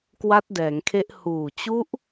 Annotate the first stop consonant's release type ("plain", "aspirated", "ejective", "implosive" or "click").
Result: plain